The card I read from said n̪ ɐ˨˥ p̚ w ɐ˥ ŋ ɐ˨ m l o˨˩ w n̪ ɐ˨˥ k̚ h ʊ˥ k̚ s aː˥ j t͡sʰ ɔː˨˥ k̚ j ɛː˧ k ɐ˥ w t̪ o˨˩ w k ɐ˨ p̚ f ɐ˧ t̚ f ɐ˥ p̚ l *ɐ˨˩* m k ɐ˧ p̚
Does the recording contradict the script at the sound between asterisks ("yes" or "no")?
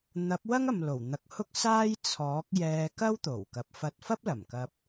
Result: no